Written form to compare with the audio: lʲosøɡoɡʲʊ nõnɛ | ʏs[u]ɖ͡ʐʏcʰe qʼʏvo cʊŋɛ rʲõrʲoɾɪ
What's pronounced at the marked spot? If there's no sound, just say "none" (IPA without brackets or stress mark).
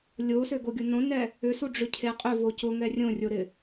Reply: u